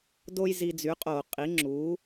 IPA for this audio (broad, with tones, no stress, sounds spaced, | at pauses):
d o˥ j z i˧ d͡z y˩˥ qʼ o˧˩˧ qʼ i˩˥ ŋ͡ǁ u˩˥